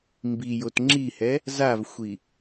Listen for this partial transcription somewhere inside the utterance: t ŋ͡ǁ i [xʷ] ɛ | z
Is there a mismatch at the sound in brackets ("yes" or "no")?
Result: yes